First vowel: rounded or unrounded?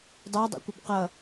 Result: unrounded